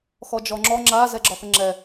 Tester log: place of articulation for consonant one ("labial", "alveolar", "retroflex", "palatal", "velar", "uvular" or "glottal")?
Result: velar